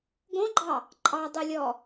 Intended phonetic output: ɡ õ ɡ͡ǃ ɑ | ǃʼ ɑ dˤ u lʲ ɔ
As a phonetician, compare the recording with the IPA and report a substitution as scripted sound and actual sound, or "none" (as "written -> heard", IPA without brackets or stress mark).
none